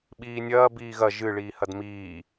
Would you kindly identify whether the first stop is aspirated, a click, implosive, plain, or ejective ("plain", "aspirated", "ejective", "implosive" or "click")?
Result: implosive